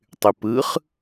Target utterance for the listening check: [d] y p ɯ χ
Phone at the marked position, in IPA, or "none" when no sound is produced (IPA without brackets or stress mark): tˤ